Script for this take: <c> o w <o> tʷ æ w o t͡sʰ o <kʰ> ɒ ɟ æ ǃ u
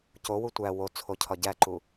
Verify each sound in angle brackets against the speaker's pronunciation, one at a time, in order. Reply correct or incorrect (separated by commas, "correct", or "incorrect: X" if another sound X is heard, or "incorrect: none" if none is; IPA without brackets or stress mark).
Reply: correct, incorrect: u, incorrect: cʰ